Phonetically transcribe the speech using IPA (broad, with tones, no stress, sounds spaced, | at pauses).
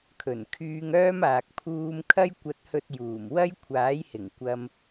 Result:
kʰ ɵ˨˩ n kʰ yː˧ ŋ œː˥ m aː˨ k̚ pʰ uː˥ m kʰ ɐ˥ j kʷ ɐ˧ t̚ h ɵ˧ t̚ j uː˨˩ m w ɐ˥ j kʷʰ aː˨˥ j h ɪ˨˩ ŋ kʷ ɐ˧ m